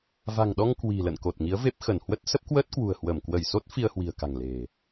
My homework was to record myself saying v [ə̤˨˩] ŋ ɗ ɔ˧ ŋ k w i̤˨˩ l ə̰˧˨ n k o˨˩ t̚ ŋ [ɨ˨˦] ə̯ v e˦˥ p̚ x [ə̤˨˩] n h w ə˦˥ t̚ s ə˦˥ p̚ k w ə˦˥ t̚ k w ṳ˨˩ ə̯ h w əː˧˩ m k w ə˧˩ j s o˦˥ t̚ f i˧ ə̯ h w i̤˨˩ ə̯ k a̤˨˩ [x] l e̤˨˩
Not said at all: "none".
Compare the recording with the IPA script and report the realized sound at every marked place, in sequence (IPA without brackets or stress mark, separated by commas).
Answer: a̤˨˩, i˨˦, ə˧˩, ŋ